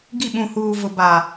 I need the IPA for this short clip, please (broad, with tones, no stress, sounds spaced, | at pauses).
ɡ i˦˨ ɓ ũ˨ h uː˨ v ʊ˨ b a˨